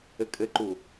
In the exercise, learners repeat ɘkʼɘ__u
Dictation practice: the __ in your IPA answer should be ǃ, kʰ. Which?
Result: ǃ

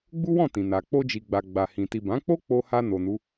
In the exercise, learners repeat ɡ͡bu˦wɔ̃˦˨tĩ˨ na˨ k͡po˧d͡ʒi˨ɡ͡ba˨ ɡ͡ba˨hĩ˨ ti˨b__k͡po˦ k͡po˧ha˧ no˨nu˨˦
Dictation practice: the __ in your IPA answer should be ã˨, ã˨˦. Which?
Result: ã˨˦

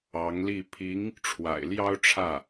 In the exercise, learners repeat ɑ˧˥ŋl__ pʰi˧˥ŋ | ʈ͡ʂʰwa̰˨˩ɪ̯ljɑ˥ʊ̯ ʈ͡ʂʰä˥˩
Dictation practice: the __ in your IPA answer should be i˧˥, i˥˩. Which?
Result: i˥˩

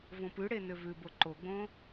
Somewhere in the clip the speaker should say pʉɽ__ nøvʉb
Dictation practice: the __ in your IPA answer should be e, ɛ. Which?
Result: e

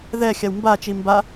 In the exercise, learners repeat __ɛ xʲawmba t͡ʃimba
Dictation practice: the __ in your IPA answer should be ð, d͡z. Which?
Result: ð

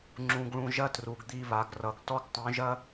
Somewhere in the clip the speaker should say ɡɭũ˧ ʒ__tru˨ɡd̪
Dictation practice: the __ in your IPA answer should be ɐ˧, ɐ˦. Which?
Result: ɐ˦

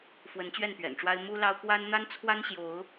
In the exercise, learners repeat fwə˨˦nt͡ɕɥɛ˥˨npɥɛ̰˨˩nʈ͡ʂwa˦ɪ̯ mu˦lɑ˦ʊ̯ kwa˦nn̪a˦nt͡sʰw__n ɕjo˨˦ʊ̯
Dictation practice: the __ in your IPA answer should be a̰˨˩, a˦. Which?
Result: a˦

